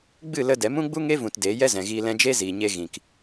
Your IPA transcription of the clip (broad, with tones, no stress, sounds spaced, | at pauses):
ɡ͡b ɨ˦˨ l ə˧ d ɛ˨˦ m ũ˦ ɡ͡b u˦ ŋ e˦ v ũ˧ t d e˨˦ j ɛ˦ z ɛ̃˨ ɣ iː˧ l ɛ̃˧ d͡ʒ e˦ z iː˨ ɲ e˧ ɣ ĩ˨ k